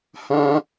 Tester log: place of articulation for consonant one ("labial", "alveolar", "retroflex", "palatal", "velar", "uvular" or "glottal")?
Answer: glottal